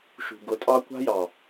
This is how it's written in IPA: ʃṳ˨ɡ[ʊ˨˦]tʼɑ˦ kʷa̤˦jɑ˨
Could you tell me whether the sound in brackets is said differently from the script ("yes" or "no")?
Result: no